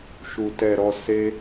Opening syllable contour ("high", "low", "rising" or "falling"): low